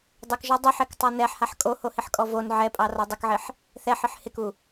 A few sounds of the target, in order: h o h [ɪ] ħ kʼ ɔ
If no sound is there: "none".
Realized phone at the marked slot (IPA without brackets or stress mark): ɪ